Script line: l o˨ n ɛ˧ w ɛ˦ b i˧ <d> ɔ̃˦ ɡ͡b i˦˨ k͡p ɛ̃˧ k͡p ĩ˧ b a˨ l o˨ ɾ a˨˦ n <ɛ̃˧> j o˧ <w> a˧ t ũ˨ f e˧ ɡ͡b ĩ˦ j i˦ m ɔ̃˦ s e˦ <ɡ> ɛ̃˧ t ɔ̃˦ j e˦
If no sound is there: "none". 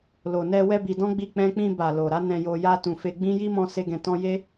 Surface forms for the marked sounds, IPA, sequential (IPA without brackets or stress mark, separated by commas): d, ɛ̃˧, j, ɡ